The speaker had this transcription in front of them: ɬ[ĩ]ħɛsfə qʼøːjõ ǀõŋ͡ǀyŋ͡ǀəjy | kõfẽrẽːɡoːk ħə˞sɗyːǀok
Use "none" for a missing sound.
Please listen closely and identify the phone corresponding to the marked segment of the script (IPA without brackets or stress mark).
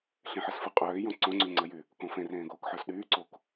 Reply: ẽ